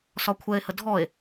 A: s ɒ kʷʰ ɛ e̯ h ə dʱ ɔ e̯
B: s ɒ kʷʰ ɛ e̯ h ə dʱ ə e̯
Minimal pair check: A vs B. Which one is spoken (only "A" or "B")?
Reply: A